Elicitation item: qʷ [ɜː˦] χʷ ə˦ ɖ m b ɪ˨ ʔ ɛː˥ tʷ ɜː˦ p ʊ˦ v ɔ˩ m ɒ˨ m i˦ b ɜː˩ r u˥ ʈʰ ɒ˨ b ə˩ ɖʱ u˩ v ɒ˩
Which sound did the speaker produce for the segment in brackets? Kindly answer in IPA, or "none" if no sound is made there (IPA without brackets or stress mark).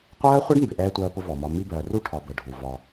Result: ɜː˦